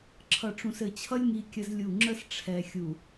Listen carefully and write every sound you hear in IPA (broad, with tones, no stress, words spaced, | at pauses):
ǁʰʌ˨ʈ͡ʂũ˨sɘ˨t͡ɕʰʌ˦lʲ ŋi˦kʲə˦zlʲu˦˨ ŋ͡ǁə˦sʈ͡ʂʰɛ˨ xʲu˨